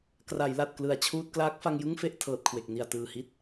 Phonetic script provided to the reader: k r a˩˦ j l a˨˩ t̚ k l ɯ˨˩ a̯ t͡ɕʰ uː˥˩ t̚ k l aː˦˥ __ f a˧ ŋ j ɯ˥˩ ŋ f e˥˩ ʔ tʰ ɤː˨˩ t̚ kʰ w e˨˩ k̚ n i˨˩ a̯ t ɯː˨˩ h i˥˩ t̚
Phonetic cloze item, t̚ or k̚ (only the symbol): k̚